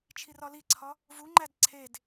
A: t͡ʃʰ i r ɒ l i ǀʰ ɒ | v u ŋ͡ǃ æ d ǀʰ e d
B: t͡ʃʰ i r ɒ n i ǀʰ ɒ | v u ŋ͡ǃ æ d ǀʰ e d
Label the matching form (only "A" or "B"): A